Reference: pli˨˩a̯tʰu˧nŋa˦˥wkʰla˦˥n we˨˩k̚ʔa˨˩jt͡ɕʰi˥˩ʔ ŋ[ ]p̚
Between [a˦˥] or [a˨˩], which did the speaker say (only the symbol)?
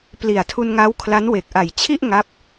a˦˥